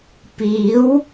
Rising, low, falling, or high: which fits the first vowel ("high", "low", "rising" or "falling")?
rising